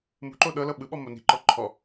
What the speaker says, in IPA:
m ṳ ǃ o ɗ ɤ l ɤ ɓ ɯ ɓ ɔ m o n i̤ ǃ ɔ ǃʰ ɔ

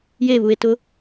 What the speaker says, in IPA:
j e β u e̯ t ʊ

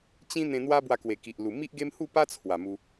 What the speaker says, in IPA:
t͡ɕ ĩ˦ n̪ ẽ˧ n̪ w a˦ b w a˧ k w e˨˩ k i˨ ʔ l u˨˩ m i˦ ʔ ɡ e˦ m h u˥˧ p a˦ t͡sʰ w a˨˩ m u˧

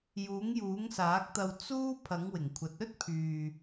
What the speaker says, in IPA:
j uː˨˥ ŋ j uː˨˥ ŋ s aː˨˥ k̚ t̪ ɐ˧ w t͡s uː˥ pʰ ɐ˨˥ ŋ w ɪ˨˩ ŋ kʷʰ ɐ˨˥ t̚ ɵ˥ t̚ pʰ yː˨

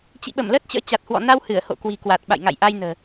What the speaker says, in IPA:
t͡ɕ ḭ˧˨ ɓ ə˧˩ m l əː˦˥ t̚ t͡ɕ ə̰ː˧˥ t͡ɕ a˨˩ t̚ h w ɔ̰˧˨ n a˧ w h ɨ˧˩ ə̯ h o̰˧˨ k w i̤˨˩ k w a˨˩ t̚ ɓ a̰˧˨ j ŋ a̰˧˨ j ʔ a˧ j n ə̤ː˨˩

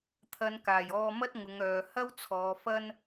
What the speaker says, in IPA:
t̪ʰ ɐ˨˧ n k aː˨˩ j ɔː˧ m ɐ˥ t̚ ŋ ʊ˨˧ ŋ œː˨ h ɐ˥ w t͡sʰ ɔː˨˧ f ɐ˥ n

